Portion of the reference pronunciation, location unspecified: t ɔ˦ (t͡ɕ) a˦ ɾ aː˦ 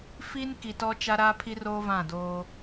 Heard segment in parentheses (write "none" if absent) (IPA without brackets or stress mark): t͡ʃ